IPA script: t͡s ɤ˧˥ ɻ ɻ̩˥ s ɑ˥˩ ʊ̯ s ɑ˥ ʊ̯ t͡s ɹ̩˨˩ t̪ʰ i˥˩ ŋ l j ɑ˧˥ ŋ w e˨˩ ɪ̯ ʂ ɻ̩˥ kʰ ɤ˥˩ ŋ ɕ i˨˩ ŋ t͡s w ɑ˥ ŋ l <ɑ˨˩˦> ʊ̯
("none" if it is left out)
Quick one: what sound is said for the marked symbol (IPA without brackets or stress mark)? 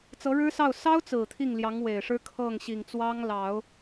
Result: ɑ˨˩˦